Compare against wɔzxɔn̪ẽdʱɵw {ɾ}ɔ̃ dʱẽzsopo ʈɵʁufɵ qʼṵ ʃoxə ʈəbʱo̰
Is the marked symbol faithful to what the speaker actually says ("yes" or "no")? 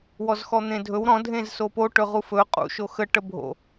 yes